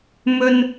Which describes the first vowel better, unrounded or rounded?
rounded